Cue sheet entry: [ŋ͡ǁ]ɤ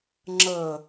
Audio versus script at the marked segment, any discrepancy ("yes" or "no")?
no